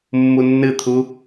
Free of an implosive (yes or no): yes